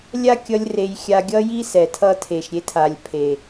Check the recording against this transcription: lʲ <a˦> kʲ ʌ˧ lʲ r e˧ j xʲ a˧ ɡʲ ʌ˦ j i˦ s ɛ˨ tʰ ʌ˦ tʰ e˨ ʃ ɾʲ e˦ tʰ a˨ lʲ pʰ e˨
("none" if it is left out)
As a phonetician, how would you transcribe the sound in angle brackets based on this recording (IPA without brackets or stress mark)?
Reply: a˦